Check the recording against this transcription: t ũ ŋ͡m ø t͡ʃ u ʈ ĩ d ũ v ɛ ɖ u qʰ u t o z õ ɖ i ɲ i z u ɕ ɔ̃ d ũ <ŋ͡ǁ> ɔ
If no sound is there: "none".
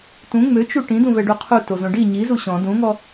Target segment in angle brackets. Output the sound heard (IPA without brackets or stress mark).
ŋ